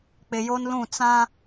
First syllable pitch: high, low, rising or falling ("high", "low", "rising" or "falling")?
low